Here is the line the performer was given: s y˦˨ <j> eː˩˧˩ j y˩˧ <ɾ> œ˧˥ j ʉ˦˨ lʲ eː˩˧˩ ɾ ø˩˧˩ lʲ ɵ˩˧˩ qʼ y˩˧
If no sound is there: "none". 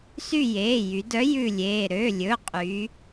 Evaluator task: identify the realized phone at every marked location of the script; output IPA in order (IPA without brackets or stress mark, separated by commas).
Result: j, d